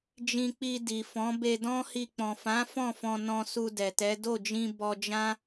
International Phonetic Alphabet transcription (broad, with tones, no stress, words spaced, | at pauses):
d͡ʒĩ˧k͡pi˧ di˨fɔ̃˨˦ be˧dɔ̃˦hi˧ k͡pɔ̃˨fã˨˦ fɔ̃˦˨fɔ̃˧nɔ̃˧ su˧dɛ˨tɛ˨˦ do˦˨d͡ʒĩ˧ bɔ˧d͡ʒã˦